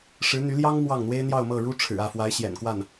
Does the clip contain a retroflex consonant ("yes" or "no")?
yes